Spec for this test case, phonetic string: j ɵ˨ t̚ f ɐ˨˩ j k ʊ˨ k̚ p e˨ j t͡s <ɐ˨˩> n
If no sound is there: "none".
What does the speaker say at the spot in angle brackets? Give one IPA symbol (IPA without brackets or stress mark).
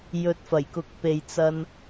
ɐ˧